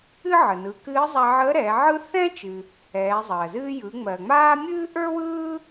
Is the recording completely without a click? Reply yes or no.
yes